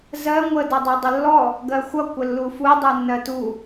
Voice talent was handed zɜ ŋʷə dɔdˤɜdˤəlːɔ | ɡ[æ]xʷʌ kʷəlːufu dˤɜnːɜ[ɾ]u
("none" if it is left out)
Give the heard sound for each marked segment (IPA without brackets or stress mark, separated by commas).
ɜ, t